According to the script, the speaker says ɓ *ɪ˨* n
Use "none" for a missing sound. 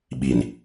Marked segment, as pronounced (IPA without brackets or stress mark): i˨